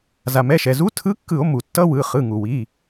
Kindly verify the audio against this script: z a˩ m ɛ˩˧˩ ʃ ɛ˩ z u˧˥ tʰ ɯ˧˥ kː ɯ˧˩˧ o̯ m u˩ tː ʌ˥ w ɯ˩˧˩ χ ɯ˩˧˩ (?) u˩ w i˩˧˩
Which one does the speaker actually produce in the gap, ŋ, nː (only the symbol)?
ŋ